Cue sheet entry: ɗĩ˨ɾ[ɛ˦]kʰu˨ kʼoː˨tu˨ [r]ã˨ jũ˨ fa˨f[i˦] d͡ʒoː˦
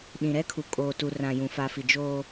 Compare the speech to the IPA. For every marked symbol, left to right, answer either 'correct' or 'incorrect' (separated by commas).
correct, correct, incorrect